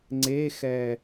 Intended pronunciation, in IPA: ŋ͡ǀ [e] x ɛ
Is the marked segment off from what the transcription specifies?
no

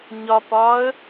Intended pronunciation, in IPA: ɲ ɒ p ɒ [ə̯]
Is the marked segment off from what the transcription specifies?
no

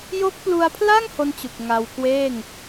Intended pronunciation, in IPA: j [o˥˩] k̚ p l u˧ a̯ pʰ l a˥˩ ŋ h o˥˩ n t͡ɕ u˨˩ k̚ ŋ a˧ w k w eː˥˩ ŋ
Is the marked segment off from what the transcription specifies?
yes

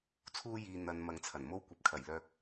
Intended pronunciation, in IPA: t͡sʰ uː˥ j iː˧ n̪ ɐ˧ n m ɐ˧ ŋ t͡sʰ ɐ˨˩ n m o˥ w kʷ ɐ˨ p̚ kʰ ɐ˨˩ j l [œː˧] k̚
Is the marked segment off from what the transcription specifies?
no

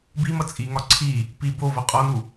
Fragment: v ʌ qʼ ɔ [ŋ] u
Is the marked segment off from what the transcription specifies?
yes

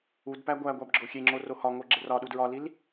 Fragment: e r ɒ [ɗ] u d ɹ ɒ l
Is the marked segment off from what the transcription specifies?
no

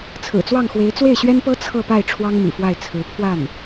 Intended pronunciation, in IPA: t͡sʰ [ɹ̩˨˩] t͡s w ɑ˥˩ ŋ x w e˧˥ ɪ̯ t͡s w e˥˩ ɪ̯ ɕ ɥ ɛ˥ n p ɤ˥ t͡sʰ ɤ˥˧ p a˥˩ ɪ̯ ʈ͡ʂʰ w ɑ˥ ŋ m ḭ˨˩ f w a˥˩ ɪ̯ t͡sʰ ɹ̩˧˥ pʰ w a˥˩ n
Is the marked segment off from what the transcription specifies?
no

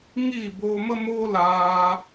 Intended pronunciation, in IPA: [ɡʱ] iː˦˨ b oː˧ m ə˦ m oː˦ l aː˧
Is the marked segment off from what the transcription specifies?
yes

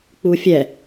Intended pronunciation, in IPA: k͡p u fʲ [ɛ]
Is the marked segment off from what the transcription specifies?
no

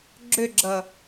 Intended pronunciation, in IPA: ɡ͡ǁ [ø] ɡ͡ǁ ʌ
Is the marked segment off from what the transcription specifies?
no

